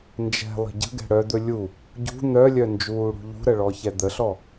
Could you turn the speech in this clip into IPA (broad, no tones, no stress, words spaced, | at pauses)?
nd͡ʒɛ̤lˠə̤ ɟə̤ɡɛ̤ ɽœd̪ɵ lʲu | ɟṳ n̪œlʲœ nd͡ʒuːɽṳʎṳɾə ɭɔçɛd̪əɬɔ